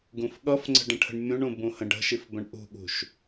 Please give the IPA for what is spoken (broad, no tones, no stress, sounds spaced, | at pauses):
ɡ ũ f ɠ ʌ f ŋ͡ǀ ə̤ ɖ ə̃ ʈʰ ə̤ ɳ mʲ ũ ɳ ũ b ũ h ə̃ ɖ ə̤ ʃ i f b ə̃ ɳ ʔ ṳ ɠ ṳ ʃ